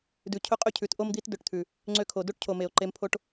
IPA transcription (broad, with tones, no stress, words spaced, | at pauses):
dʉ˧ cʰɵ˦qʼø˦cʰʉ˨˦t ʔo˦md̪i˦tdɵ˧ʈt̪ʰʉ˨ | ŋ͡ǀø˧kʰo˨do˦ʈcʰo˨ me˨o̯ǃe˧mpʰo˦ʈ